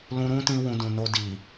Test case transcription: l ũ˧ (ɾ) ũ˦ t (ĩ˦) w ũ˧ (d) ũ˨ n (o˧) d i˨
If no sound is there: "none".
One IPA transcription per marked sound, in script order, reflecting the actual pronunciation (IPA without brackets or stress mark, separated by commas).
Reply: ɾ, ĩ˧, d, o˧